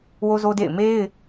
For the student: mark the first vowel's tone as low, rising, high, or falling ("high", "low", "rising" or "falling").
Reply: high